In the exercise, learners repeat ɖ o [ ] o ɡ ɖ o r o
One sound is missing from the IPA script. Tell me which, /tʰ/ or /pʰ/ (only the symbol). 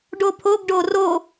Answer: pʰ